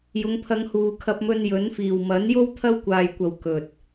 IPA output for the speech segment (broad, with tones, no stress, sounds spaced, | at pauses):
j ʊ˨˧ ŋ pʰ ɐ˧ ŋ h uː˨ kʰ ɐ˧ p̚ m ɵ˧ n j ɵ˨˥ n f iː˨˩ w m ɐ˨˥ n j o˥ w t̪ʰ ɐ˥ w kʷ aː˨ j kʷ ɐ˨ w k ɵ˨ t̚